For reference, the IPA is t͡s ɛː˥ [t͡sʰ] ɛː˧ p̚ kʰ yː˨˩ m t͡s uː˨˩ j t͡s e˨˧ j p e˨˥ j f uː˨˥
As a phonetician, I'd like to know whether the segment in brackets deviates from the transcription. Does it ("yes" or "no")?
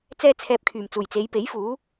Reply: no